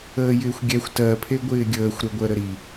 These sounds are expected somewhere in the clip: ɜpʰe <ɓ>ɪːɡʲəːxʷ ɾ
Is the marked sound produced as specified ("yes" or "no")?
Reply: no